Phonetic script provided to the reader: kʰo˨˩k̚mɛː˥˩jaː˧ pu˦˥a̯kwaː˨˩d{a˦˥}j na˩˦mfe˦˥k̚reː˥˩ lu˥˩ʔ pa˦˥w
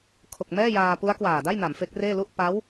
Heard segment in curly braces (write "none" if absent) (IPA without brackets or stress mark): a˥˩